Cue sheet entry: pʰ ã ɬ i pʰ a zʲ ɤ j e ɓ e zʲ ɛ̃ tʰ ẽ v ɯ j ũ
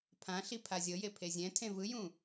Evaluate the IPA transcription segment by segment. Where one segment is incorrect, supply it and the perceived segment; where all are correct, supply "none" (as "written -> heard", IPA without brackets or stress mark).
ɓ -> pʰ